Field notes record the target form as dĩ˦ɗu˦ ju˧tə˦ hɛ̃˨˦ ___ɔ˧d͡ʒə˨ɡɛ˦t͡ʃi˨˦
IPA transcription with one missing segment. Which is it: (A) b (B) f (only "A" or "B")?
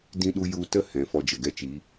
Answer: B